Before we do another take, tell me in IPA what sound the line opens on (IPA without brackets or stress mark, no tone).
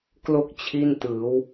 k